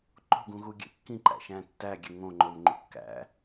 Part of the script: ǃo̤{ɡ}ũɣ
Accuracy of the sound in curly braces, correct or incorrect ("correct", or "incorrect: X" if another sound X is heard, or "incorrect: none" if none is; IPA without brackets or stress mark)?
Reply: correct